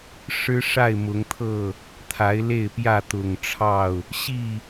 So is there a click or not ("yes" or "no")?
no